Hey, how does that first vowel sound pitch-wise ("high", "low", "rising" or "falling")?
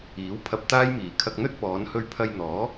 rising